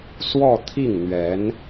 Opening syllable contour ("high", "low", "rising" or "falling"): falling